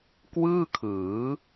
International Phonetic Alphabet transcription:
k w ɯː˥˩ kʰ ɯː˩˦

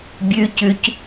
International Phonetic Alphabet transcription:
bʲ ʉ c ʉ c

